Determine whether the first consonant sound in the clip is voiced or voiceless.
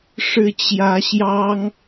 voiceless